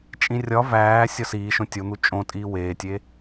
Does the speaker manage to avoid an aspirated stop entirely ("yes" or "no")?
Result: yes